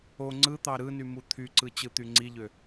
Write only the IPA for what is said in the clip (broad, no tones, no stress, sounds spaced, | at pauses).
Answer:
o ŋ͡ǀ ɯ t̪ ɑ ɾ ɯ n y m u t̪ʰ y ǀ ɯ t͡ɕ ɯ t̪ y ŋ͡ǀ i ʎ ø